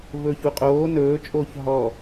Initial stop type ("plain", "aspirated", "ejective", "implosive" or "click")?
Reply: ejective